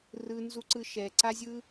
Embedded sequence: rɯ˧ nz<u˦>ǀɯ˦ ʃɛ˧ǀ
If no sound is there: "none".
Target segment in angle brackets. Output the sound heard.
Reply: u˦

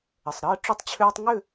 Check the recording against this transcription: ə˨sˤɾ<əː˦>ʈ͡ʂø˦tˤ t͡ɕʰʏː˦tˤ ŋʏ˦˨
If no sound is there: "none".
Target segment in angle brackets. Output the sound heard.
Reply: əː˦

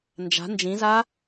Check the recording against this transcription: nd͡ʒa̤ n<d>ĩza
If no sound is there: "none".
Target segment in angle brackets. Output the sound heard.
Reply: d͡ʒ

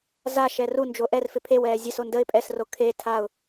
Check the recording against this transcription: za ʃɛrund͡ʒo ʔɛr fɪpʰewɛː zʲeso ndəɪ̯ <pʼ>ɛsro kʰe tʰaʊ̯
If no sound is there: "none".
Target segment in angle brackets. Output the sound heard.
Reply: pʼ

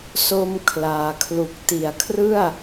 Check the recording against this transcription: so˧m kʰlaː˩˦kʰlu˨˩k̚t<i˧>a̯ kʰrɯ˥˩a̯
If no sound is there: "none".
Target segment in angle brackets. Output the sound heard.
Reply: i˨˩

